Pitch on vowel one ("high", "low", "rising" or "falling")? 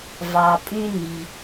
low